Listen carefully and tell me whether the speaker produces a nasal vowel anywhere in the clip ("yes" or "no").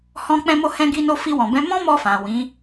yes